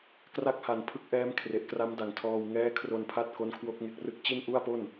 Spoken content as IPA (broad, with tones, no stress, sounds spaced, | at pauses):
k r a˥˩ k̚ h a˨˩ n pʰ ɯ˦˥ k̚ ʔ ɛː˦˥ m kʰ r e˨˩ ʔ k r a˦˥ m d a˩˦ ŋ tʰ ɔː˧ w ŋ ɛː˦˥ kʰ r o˧ n pʰ a˦˥ t̚ k o˦˥ n kʰ w o˦˥ k̚ ŋ e˦˥ k̚ r ɯ˥˩ k̚ t͡ɕ i˥˩ n ʔ u˥˩ a̯ p o˥˩ n